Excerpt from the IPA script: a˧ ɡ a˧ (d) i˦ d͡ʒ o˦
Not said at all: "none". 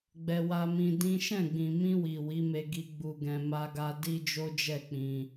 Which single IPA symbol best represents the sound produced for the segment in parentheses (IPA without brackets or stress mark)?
d